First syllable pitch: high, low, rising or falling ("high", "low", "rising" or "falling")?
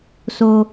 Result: low